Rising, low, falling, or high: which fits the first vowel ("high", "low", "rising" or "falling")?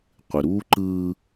low